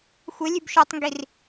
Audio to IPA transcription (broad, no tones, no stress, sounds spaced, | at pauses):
xʷ ə lʲ ʉ b ʃ o tˤ ŋ ɡ i r